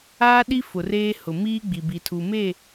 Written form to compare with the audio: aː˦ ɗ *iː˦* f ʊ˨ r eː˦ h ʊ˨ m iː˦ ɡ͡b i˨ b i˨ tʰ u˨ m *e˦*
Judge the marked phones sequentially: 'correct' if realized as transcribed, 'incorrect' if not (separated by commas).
incorrect, incorrect